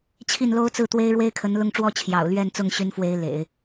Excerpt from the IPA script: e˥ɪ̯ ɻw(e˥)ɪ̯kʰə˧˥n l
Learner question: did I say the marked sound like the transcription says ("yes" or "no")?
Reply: yes